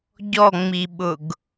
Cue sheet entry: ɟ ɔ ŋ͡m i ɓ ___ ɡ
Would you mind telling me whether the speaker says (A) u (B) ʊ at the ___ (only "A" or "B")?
B